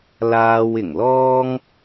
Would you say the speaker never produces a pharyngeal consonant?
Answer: yes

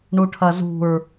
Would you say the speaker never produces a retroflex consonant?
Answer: no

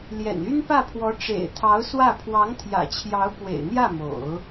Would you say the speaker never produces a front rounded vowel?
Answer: no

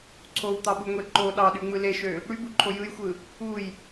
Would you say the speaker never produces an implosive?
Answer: no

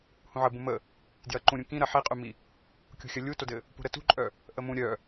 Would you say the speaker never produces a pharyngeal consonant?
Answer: no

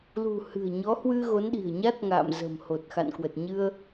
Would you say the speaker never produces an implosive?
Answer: no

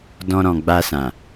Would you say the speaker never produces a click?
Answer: yes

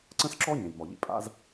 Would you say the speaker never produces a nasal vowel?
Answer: no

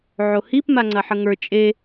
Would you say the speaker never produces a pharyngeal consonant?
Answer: no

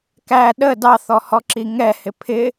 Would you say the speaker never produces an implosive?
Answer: no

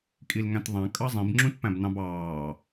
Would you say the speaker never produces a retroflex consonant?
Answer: yes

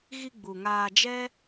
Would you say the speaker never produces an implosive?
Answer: yes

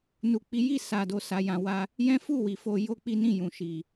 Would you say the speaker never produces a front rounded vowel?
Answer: yes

